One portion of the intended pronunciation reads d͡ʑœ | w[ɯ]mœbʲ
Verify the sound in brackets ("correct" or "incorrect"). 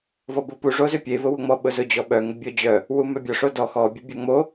incorrect